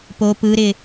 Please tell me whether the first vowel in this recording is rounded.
yes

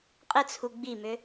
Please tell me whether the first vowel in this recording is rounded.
no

